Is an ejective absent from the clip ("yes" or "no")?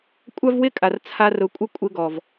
no